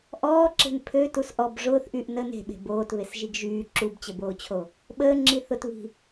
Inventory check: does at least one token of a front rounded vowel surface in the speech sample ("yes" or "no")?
yes